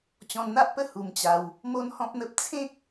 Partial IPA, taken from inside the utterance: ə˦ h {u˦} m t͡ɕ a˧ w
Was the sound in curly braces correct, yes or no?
no